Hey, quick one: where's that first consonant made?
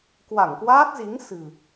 velum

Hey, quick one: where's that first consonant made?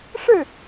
retroflex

